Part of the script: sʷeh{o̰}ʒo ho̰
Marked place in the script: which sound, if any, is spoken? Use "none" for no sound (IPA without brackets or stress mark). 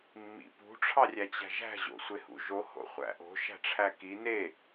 ṵ